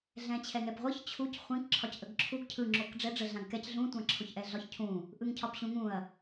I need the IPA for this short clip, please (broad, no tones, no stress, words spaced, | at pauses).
ɮɛ̃t͡ɕʰɛŋɛpʁʷɯç t͡ɕʰuc χʷĩk ǁʰɒcʔəɡǁʰuɡ cʰɯ ŋ͡ǁokɖ͡ʐɛ ɖ͡ʐə ɮãɡkɛc ɮũ tʷãǁʰoçʔɛɮɒç cʰũ | ʔɯŋcʰɒpɕũŋũɐ̯